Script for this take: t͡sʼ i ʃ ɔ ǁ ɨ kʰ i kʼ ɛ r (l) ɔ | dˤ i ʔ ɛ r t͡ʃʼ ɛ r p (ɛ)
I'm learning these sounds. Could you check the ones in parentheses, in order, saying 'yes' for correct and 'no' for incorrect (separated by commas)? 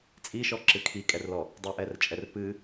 yes, no